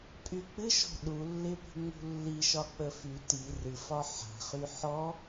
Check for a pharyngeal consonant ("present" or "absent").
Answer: present